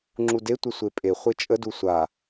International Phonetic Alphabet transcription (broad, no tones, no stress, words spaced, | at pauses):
ŋ͡ǁude tʷəsʷepʼe χʷet͡ʃʼə dusʷa